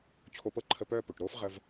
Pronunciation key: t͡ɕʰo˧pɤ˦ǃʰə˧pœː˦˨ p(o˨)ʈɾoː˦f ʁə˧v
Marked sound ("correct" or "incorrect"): correct